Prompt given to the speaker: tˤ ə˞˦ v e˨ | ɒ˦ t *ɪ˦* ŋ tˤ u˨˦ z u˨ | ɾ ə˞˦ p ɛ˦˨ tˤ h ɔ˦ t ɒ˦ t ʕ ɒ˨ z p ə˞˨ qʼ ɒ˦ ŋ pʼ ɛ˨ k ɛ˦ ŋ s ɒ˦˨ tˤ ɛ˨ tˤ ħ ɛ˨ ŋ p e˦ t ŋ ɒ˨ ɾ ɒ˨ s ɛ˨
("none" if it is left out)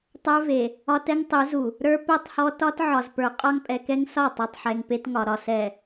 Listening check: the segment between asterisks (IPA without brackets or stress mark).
ɛ˦